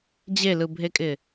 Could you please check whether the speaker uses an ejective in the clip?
yes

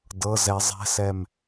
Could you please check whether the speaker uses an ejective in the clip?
no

